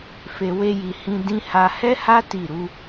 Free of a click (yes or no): yes